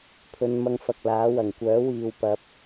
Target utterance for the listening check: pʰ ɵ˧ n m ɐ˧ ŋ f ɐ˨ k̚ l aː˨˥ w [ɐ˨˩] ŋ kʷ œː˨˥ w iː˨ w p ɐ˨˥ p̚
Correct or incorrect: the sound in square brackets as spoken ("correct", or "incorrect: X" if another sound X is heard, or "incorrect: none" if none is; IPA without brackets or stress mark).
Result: correct